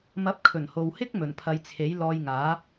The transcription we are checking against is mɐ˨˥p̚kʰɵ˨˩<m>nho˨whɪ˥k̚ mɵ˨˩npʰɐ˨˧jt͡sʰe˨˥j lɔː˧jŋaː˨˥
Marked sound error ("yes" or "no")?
yes